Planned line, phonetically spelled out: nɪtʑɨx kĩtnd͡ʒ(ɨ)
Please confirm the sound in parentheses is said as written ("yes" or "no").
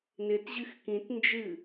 yes